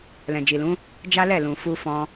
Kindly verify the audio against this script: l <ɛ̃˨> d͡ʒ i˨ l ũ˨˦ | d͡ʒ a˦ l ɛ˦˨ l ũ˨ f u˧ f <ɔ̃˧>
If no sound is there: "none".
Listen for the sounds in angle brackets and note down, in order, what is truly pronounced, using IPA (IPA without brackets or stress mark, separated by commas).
ɛ̃˨, ɔ̃˧